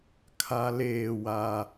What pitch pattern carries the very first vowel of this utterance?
high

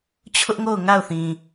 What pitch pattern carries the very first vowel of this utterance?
high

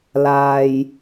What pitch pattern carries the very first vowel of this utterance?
low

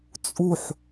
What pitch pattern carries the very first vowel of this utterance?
falling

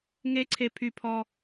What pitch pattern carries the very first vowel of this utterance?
high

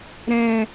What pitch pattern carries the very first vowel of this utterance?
low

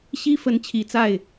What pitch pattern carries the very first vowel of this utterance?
high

